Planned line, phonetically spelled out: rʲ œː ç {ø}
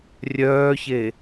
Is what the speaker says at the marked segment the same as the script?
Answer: no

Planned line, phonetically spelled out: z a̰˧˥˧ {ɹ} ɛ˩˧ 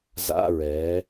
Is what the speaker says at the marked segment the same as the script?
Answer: yes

